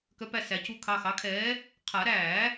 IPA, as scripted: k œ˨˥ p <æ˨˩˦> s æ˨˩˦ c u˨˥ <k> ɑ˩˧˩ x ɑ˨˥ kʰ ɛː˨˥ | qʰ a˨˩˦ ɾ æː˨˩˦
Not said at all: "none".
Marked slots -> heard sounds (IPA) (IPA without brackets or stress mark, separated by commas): æ˩˧˩, kʰ